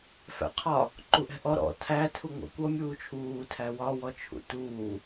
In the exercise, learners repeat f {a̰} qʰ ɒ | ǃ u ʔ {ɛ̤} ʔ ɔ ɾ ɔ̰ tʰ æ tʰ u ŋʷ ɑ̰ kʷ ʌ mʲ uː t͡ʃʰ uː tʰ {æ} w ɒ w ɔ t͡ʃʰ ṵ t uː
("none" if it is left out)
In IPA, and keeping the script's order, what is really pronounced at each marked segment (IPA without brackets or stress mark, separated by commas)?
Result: æ̰, ɛ̤, æ